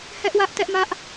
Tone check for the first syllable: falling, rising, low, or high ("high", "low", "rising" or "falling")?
high